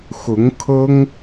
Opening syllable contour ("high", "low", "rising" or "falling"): rising